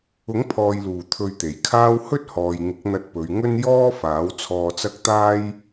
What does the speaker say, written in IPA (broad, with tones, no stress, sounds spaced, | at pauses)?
ʊ˨˥ ŋ pʰ ɔː˨ j l uː˨˩ t̪ʰ ɵ˧ ɥ t̪ e˨˩ j kʰ aː˥ w h ɵ˥ t̚ h ɔː˨ j ŋ ɪ˨˥ k̚ n̪ ɐ˧ t̚ p ɵ˨˧ ɥ ŋ ɵ˥ n j ɔː˥ f aː˨˥ w t͡sʰ ɔː˧ t͡s ɐ˥ k̚ t̪ aː˥ j